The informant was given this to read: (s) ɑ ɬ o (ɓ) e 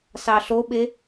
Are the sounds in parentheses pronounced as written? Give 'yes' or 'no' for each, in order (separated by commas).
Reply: yes, yes